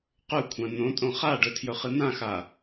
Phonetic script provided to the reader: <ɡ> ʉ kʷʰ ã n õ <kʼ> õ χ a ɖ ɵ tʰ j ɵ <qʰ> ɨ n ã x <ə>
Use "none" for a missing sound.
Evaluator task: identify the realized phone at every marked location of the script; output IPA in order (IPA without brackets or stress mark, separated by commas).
q, tʼ, χ, a